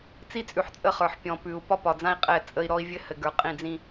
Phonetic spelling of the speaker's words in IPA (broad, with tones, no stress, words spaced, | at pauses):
t͡si˦t͡sʼʉ˨ħt͡sʼə˦˨χə˞˨ħ pʲɔ̃˨pʉ˨u̯ pɒ˦pɒ˨d͡zã˦i̯ qʼɛ˦˨t͡sʼə˦i̯ ɾɔ˦i̯vʲɘ˦hɘ˨ɡə˞˨ qʼĩ˦˨d͡zĩ˦